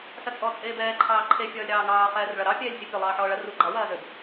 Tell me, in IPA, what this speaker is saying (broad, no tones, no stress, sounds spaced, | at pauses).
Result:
s ɐ t͡sʼ ɔ t͡sʼ eː b ɛː ǃʰ ɑː ǃʰ e fʲ ɒː lʲ ɾ ɑː ŋ ɑː χ ɛː r ɭ ɐ ɾ ɑ pʲ ɛː lʲ sʲ ɐ pʲ ɐ lˠ ɑː ħ ɔː ɭ ɐ r u ɡ͡ǃ ɑ w ɐː z ø b